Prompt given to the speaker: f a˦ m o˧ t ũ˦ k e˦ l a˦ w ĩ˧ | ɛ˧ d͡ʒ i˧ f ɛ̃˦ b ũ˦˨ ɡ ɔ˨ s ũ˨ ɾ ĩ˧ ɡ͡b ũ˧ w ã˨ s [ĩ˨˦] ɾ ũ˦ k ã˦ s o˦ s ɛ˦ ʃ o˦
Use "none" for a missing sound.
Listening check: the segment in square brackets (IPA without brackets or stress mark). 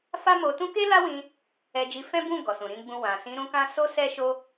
ĩ˨˦